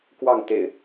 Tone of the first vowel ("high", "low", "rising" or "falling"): falling